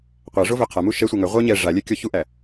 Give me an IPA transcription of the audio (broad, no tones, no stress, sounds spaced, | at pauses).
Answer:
qʷ æ ʐ o v œ qʰ a m u ʃ ɛ sʷ ɛ ŋ œ ʁʷ œ ɲ ɛ ʐ a lʲ ɛ kʲ ɔ ç u ʔ æ